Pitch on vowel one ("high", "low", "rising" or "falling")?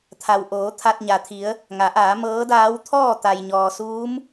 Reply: low